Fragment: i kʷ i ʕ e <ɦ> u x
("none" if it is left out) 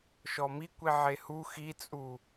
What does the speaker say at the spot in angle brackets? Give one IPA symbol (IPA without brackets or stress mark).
h